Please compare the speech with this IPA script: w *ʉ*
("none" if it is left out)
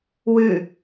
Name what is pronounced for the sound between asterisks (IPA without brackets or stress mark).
ʉ